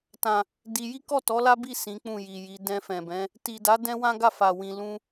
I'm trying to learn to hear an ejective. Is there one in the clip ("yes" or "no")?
no